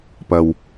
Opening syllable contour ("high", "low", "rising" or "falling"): low